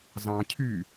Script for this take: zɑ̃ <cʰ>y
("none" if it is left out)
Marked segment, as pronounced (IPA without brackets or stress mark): cʰ